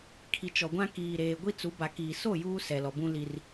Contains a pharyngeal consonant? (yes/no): no